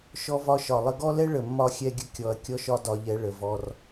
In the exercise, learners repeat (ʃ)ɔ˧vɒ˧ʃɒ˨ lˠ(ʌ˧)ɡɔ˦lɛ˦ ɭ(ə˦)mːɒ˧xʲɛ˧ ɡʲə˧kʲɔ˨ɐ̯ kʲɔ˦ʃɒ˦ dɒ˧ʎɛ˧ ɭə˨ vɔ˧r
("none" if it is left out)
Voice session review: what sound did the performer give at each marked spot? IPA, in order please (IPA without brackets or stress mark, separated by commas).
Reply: ʃ, ə˧, ə˨